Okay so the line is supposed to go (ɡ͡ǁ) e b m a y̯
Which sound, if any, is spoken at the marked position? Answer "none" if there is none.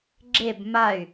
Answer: ɡ͡ǁ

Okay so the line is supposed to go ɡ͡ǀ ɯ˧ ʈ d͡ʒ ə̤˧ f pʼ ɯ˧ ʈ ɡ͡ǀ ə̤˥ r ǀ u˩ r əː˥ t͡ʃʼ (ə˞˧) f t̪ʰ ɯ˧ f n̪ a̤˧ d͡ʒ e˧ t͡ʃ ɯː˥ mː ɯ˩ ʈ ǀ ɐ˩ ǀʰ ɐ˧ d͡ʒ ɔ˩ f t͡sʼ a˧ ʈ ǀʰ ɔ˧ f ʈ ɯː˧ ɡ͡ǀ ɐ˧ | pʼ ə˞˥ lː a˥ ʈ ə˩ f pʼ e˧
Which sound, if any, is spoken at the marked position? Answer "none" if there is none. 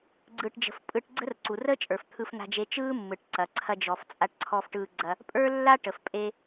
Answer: ə˞˩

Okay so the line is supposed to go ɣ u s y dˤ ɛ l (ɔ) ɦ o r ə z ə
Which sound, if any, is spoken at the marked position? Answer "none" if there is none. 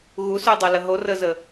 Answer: ə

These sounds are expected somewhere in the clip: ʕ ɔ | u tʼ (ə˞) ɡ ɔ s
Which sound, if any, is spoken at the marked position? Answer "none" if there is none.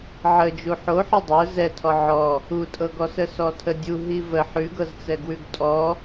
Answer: ɤ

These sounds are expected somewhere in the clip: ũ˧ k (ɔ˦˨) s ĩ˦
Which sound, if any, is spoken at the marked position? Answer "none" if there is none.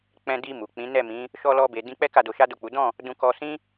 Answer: ɔ˧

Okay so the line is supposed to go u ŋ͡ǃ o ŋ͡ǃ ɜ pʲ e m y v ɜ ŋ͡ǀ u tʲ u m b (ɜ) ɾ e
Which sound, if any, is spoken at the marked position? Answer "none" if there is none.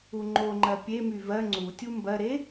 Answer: ɜ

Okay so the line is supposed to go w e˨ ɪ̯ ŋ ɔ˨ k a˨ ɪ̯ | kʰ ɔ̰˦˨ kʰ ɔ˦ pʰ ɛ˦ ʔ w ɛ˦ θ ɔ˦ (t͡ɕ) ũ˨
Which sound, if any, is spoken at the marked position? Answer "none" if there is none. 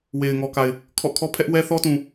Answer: t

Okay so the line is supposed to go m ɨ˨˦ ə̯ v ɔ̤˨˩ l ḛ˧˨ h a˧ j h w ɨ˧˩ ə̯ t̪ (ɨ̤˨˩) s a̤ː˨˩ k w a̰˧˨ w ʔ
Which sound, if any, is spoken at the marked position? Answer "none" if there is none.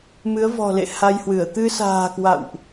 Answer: ɨ˧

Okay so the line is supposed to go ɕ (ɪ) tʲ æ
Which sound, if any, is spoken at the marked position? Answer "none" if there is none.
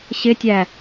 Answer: ɪ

